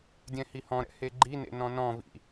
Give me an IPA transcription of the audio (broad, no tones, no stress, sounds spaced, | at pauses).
dʲ ɛ̃ h i h ɔ̃ ɾ ɛ̰ h e ɡ͡ǃ i n ḛ n ɔ̃ n ɔ̃ v ḭ